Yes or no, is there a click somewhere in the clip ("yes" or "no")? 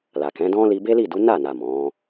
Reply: no